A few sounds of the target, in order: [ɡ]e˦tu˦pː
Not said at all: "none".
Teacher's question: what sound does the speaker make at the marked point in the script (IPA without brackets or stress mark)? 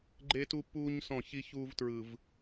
ɡ͡ǃ